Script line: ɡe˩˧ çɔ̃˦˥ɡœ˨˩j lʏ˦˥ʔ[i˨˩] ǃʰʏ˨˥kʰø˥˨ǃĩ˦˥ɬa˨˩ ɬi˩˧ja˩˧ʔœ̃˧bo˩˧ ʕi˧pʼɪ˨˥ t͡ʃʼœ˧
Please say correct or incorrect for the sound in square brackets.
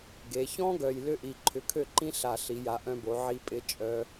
correct